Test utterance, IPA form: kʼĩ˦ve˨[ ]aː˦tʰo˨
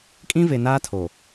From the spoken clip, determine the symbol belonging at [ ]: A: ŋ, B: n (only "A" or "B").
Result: B